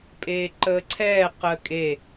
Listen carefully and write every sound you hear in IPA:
pʼ eː ǃ əː ǀʰ ɛː q əː kʼ e

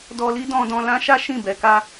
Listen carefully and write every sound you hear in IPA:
d ɔ˧ l i˦ d ɔ̃˧ d ɔ̃˧ l ã˦ ʃ a˦ ʃ ĩ˦˨ b ɛ˧ k a˧

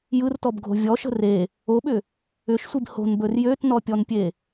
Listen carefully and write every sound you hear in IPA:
j ɯ r t ɔ b ɡʱ o̤ vʲ ɔ ʃ ə̤ r e | o ɓ ʏ | ʏ ʃ sʷ i b h o̤ n b ɵ r j ø t n ɔ pʲ ɔ n pʲ e

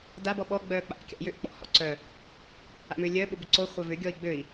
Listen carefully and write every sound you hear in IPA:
d a b ɔ ɓ ɔ ɡ͡b œː k͡p a̰ ʔ kʲ a̰ j ʏ ʔ k͡p ɔ̰ h ɔ̰ ǀ œ | a̰ m ʏː lʲ œ ɓ ʊ b ʏ ǀ o χʷ œ v ʏ ɡʲ ɔ i̯ ɡ͡b ø i̯

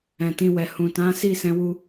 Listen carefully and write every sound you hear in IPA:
ɛ̃˨ t ĩ˧ w ɛ˨ h ũ˨ t ã˨˦ s i˦˨ s ɛ̃˨˦ w u˧

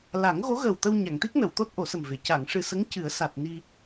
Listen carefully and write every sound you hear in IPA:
l a˨˩˦ ŋ ɣ o˧˥ ɣ əː˨˩ w t̪ ə˧ w ɲ a˨˩˨ ŋ t̪ i˦˥ k̚ n ə˨˩˨ w t̪ o˦˥ t̚ ʔ o˨˩˦ s ə˨˩ m v e˨˩˨ c a˨˩˨ ŋ ʂ ɨ˨˩ s ə˧˥ ŋ c ɨ˨˩˦ ə̯ s a˨˩ t̚ n i˧

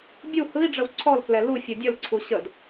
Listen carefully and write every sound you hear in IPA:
bʲ u h ɯ i̯ ɖ͡ʐ ə w ǀʰ ɔ l k l ɛ l u fʲ ɯ dʲ ə l ǀʰ u ɕ ə d

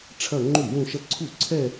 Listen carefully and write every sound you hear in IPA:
ʈ͡ʂʰ ɐ˥˧ ŋ͡ǃ ʉ˥˩ j ũ˥˧ ʃ ɐ˥˧ ǀʰ u˥˩ ǀʰ ɛ˥˧

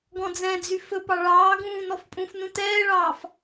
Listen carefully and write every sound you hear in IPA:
ɡ ɔ̃ d͡z ɛ̃ d͡z y f ɵ p ɑ ɭ ɑː ɡ ũː n ɔ f pʼ ũ f n ũ t ɛː ɭ ɑː f

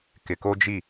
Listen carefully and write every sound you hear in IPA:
k ɪ˨ k o˦ d͡ʒ i˦˨

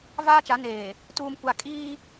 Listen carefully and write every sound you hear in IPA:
v aː˦ t͡ʃ a˨˦ n eː˨ | t uː˨ m kʷ a˨ kʼ iː˦

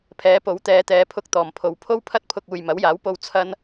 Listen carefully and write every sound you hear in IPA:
pʰ ɛː˨˥ p o˨˥ w t̪ ɛː˨˧ t̪ ɛː˨˧ pʰ ʊ˧ k̚ t̪ ɔː˨˩ m pʰ o˨ w pʰ o˥ w pʰ ɐ˥ t̚ pʰ ʊ˧ k̚ uː˨ j m ɐ˨˥ w j aː˨˥ w p o˧ w t͡sʰ ɐ˧ n

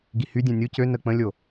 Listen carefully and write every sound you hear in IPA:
ɡ i h y dʲ ɛ̃ nʲ u c ø n ə k͡p ə̃ lʲ o

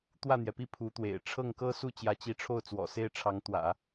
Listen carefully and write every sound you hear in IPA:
t̪ w ä˥˩ n̪ j ɛ˩ p i˥˩ pʰ u˧˥ t̪ w ḛ˨˩ ɪ̯ ʈ͡ʂʰ ɤ˥˩ ŋ k ɤ˥ s u˥˩ t͡ɕ j ä˧˥ t͡ɕ i˧˥ ʈ͡ʂʰ o˥˩ ʊ̯ t͡s w ɔ̰˨˩ s e˥˩ ɪ̯ ʈ͡ʂʰ ɑ˧˥ ŋ t̪ w ä̰˨˩˦

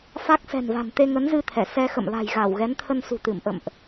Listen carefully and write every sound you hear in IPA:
f a˦˥ k̚ s ɛ̤˨˩ n v a̤˨˩ n t̪ e˧ ŋ ə˨˦ n z ɨ˧ t̪ʰ ɛ˧˩ s ɛ˧ x ə̰˧˨ m l a̤˨˩ j ɣ a˧˩ w ɣ ɛ˨˦ n t̪ʰ ə˧ n s ṳ˨˩ t̪ ɨ˧˩ m ʔ ə̰˧˨ m ʔ

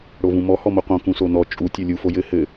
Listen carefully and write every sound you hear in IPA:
ɽ o v ũ m ɔ h ɔ m o q õ k ũ s o n ɔ t͡ʃʼ u tʲ o lʲ u f o j ɘ h ɘ

